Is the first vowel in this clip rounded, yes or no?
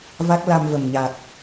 no